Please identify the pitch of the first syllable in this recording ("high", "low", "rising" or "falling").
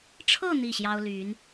falling